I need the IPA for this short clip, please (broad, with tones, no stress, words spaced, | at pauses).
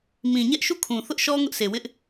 mĩ˨ɲɛ˦ʔʃu˦˨ kʰũ˨ θʊ˦ʔʃɔ˦ ŋʊ˦ʔsʰe˨wɪ˦ʔ